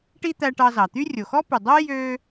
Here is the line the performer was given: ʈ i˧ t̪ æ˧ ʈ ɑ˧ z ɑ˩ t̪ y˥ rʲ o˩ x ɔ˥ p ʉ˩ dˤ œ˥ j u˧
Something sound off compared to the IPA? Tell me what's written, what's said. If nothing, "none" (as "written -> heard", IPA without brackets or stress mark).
u˧ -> ø˧